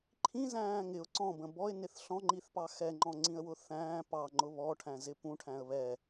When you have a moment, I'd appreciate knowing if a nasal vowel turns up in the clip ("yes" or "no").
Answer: yes